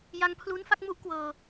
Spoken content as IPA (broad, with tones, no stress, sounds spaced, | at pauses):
j a˧ ŋ pʰ l u˦˥ n f a˥˩ k̚ m u˥˩ ʔ k w ɤː˧